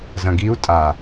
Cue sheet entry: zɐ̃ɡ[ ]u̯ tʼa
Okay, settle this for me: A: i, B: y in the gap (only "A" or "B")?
A